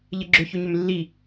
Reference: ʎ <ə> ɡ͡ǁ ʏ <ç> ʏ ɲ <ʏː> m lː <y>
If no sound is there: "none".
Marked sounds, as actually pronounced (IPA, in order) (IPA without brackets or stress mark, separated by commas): ə, ç, ʏ, i